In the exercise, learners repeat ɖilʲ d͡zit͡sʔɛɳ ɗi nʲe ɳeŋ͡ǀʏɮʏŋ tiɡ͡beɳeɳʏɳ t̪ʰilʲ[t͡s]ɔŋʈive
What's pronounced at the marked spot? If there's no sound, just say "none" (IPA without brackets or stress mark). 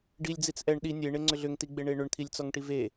t͡s